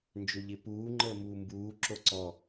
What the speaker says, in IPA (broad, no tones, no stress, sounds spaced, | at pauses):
n d͡ʒ ø ʎ ɪ p uː ŋ͡ǃ əː m uː m b uː ǁ o ǀ ɔ